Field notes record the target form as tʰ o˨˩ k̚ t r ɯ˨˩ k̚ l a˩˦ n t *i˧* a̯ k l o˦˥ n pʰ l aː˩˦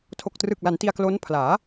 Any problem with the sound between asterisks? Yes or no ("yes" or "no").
no